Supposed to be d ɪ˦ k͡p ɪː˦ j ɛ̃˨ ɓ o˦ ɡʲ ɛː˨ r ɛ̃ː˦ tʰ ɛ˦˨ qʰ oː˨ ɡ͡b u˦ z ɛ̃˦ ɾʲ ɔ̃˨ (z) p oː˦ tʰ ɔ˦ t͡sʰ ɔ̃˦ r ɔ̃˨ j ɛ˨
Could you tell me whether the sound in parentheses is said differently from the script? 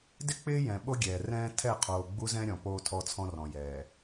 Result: yes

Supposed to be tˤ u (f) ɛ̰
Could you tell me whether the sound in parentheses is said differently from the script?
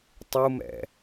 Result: yes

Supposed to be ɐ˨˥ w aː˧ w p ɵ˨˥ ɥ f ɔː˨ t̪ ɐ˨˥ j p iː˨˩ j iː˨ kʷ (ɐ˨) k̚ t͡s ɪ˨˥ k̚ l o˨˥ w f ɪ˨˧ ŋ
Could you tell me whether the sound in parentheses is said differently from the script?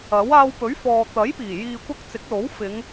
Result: yes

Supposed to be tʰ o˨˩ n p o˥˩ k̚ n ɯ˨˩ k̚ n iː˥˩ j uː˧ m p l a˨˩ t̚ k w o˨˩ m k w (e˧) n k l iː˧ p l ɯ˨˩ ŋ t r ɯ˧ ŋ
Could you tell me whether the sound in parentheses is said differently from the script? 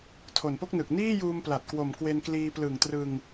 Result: no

